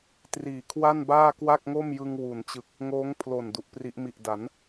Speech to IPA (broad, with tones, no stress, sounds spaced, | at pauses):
t r iː˨˩ kʰ w a˥˩ n b aː˥˩ k w a˥˩ k̚ ŋ o˥˩ m j ɯ˧ ŋ w u˩˦ n t͡ɕ ɯ˨˩ k̚ | ŋ oː˦˥ ŋ pʰ l o˨˩ n d u˨˩ ʔ p r i˦˥ ʔ m i˨˩ ʔ d a˩˦ n